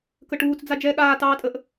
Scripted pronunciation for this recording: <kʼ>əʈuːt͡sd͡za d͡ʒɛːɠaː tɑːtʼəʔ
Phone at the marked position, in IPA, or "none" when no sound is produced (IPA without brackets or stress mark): k